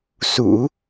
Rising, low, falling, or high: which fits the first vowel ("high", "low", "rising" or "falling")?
low